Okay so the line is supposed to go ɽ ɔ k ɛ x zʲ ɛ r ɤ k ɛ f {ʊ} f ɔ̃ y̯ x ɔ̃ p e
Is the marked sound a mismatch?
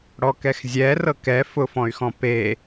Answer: no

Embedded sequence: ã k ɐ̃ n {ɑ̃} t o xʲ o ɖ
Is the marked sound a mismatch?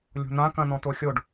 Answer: yes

